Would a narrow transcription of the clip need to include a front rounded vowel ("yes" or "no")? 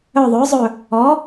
yes